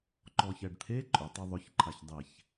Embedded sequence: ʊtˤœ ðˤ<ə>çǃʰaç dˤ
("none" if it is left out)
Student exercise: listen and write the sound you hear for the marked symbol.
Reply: ʊ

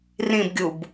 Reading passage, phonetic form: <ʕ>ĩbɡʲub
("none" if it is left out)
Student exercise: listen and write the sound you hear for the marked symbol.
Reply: r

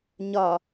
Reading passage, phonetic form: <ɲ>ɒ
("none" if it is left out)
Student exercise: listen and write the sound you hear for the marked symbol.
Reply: ɲ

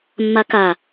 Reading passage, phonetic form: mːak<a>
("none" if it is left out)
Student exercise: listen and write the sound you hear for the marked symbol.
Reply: a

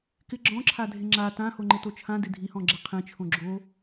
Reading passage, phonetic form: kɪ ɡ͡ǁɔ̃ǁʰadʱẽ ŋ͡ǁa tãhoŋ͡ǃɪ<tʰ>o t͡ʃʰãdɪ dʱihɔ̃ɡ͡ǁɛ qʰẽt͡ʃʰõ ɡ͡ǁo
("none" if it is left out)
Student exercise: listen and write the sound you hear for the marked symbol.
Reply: t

